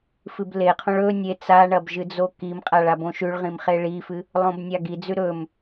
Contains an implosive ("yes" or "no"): no